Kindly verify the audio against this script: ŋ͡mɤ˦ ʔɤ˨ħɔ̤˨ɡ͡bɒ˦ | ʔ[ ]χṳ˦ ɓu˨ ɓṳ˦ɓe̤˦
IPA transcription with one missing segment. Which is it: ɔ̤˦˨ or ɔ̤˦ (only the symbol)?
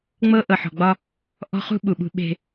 ɔ̤˦